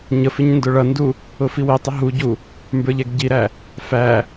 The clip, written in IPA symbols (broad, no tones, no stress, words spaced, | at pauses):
ɲəfɪɲ ndʊɭʌndu | ʊfiwitˤə ɦuɟu | mbə˞ʎɛɡɟiɾæ | fæ